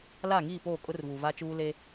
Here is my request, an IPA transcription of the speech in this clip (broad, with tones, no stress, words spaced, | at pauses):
la˦˨ŋiː˦˨poː˦˨kʼʊ˦r vuː˨vaː˦t͡ʃuː˦ le˦